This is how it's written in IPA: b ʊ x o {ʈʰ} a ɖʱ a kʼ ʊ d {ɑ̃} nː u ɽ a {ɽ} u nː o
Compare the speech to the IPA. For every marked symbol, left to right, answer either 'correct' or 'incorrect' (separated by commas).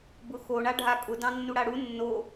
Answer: incorrect, correct, correct